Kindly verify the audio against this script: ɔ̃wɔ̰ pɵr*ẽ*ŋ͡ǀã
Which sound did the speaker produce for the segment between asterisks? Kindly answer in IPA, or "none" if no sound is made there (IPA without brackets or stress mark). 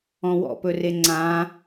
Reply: e